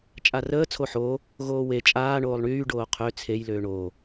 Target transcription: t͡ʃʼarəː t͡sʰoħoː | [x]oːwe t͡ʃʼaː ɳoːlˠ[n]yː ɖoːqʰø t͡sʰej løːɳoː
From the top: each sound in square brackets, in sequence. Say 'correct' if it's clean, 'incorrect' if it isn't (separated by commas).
incorrect, incorrect